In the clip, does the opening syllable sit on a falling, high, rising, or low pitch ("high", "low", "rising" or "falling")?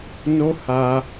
high